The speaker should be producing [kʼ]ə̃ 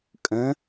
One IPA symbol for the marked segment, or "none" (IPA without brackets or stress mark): kʼ